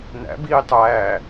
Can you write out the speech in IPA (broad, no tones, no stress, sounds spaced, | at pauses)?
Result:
n æ̰ b iː tˤ æː